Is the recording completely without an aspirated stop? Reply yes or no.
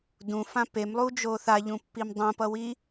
yes